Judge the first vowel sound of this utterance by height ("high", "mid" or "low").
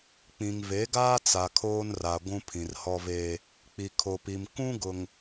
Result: high